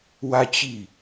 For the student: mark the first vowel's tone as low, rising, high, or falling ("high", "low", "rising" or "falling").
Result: high